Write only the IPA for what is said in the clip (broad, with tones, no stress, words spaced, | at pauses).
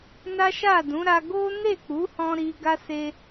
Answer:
na˦ʃa˦˨dũ˨˦ɾa˧ ɡo˦ ne˦˨k͡pu˨˦hɔ̃˧ ɾi˧ɡa˦se˧